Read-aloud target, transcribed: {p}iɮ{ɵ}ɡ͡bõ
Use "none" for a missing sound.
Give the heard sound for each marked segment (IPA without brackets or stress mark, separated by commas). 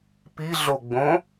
p, o